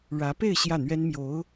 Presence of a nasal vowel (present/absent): absent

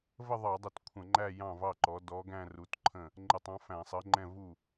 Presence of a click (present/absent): present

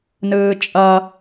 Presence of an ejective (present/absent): present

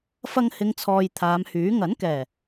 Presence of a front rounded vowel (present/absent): present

